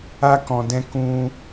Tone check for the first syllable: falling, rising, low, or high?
high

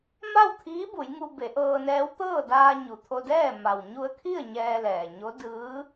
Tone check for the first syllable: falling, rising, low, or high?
falling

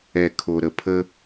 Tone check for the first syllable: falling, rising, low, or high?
low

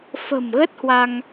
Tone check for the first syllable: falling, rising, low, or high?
low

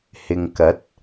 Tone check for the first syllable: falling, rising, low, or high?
low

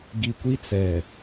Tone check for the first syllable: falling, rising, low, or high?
low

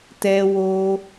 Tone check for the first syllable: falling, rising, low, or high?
high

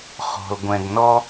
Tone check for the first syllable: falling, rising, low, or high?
low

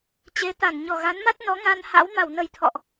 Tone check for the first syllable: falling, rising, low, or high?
rising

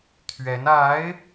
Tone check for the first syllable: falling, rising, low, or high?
rising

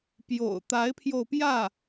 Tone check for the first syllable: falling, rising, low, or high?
low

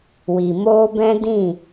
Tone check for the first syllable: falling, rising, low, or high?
low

